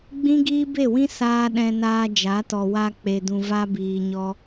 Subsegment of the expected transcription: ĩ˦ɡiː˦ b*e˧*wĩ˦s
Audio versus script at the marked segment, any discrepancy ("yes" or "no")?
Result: yes